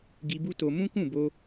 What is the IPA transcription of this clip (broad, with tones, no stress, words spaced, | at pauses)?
ɡi˧bu˦to˧ mũ˦kũ˦˨bo˧